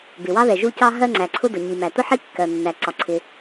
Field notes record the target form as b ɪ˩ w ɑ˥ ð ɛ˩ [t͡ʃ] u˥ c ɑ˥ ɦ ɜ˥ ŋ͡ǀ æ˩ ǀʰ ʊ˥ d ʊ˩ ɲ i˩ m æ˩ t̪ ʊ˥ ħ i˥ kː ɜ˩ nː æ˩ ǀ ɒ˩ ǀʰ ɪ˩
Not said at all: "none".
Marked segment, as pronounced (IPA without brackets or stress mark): ʒ